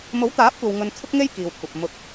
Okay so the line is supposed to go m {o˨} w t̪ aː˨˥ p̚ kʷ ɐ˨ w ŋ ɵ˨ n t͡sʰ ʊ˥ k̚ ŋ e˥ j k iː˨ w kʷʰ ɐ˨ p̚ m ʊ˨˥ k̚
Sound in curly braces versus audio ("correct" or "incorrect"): incorrect